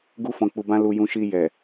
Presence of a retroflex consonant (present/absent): absent